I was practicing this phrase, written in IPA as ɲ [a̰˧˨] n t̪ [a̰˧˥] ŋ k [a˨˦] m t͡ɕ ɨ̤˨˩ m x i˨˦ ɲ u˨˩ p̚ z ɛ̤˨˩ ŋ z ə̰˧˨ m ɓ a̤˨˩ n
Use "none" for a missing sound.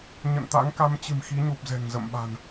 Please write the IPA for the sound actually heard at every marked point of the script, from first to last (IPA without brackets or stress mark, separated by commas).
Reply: ə̰˧˨, a̰˧˥, a˨˦